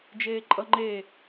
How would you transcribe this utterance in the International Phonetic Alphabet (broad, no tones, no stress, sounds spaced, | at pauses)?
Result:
d͡ʒ eː ǃʼ ʌ ŋ͡ǃ e